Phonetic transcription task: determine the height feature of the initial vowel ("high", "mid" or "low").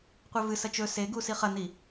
mid